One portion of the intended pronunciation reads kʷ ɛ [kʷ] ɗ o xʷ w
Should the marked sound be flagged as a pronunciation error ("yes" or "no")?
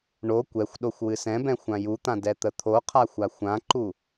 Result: yes